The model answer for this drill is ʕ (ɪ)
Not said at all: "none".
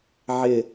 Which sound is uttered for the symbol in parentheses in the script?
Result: ɪ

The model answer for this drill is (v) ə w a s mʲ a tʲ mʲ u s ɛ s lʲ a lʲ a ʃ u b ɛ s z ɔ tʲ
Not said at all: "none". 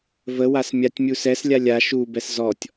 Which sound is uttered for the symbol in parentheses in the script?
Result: v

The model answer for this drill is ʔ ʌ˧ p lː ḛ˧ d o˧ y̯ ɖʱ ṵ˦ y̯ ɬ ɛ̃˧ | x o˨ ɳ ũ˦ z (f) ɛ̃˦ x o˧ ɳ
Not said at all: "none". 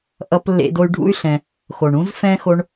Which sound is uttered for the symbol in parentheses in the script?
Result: f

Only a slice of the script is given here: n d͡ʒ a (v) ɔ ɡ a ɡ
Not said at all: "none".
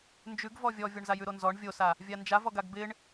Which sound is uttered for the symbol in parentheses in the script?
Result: v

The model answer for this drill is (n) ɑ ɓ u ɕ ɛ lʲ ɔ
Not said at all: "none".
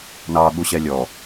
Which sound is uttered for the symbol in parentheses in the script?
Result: n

